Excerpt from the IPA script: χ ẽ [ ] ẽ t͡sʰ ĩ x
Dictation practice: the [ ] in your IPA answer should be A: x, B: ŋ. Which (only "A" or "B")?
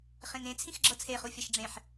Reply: B